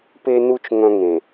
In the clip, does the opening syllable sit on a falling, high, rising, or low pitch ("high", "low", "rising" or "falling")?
high